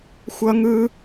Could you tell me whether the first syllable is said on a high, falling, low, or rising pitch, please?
high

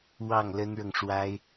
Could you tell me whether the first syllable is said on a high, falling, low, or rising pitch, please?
falling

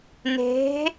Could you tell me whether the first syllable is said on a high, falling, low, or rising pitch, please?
rising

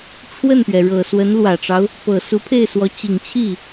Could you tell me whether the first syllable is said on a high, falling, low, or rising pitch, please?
falling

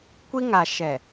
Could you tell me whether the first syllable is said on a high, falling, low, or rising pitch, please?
high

